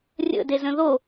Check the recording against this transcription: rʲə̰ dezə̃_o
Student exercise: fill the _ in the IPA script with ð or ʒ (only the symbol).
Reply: ð